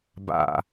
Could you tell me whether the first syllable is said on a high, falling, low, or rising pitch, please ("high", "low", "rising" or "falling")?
low